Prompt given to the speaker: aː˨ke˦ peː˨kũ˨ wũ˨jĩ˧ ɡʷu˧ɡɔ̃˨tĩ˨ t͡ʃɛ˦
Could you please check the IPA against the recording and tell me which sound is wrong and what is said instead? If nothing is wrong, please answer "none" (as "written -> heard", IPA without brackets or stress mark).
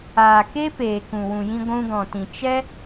u˧ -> ũ˧